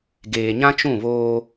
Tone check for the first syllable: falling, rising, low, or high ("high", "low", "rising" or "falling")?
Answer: low